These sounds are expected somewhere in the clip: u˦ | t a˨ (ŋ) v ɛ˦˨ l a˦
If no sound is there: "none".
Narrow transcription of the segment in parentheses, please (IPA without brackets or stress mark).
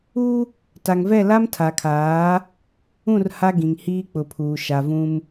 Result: ŋ